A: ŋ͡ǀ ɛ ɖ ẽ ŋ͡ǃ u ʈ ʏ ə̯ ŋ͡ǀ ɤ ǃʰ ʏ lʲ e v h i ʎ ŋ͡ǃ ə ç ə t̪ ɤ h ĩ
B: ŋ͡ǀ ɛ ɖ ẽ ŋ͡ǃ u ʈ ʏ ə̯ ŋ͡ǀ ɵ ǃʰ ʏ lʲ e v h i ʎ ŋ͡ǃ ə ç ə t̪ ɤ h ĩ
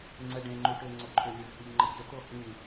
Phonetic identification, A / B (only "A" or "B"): B